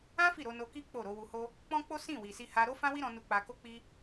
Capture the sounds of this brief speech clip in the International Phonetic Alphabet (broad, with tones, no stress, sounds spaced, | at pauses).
ã˦ f i˦˨ ɾ o˧ n o˧ k i˦ k͡p o˦˨ ɾ o˨˦ w u˧ h o˦ | k͡p ɔ̃˦ k͡p o˦ s ĩ˦˨ w i˨ s i˧ h a˧ ɾ o˦ f ã˦ w i˦ ɾ ɔ̃˧ n u˧ k͡p a˧ k o˦ k͡p i˦